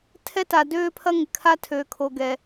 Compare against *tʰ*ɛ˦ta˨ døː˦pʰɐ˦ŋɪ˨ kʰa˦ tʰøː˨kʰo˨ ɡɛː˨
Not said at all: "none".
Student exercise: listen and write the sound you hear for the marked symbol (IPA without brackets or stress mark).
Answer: tʰ